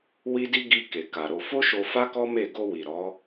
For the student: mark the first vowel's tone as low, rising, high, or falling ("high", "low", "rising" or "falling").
high